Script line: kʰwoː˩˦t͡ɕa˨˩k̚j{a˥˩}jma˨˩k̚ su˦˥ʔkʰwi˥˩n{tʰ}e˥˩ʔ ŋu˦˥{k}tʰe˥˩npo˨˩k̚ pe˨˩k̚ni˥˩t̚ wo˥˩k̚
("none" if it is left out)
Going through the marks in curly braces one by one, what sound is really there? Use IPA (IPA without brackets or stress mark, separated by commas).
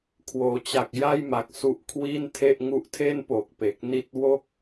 a˥˩, tʰ, ʔ